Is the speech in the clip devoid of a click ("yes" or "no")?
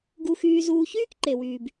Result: no